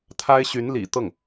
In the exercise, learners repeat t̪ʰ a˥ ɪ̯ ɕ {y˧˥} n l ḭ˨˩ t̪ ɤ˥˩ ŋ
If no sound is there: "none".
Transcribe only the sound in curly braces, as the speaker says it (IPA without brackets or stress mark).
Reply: y˧˥